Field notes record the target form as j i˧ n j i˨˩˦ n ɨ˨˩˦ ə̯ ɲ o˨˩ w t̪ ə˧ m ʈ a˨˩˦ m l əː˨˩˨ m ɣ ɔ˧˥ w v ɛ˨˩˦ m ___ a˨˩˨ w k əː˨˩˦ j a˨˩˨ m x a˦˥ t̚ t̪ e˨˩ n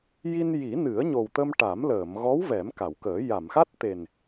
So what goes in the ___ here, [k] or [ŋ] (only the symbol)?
k